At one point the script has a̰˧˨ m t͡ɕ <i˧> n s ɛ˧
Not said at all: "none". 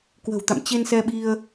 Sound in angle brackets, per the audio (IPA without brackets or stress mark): e˧